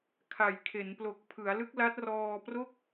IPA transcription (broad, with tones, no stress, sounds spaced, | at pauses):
kʰ a˩˦ j kʰ e˩˦ n p l o˨˩ k̚ pʰ ɯ˩˦ a̯ l ɯ˦˥ k̚ l a˦˥ t̚ r ɔː˧ p r o˥˩ k̚